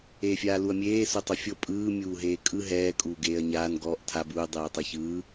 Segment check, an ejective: present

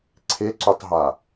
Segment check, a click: present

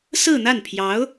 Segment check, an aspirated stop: present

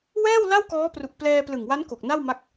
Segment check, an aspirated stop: absent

